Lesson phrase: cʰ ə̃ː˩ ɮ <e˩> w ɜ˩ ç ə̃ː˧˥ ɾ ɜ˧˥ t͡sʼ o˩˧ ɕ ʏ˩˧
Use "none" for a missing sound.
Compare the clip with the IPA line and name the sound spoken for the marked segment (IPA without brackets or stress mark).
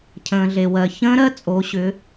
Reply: e˩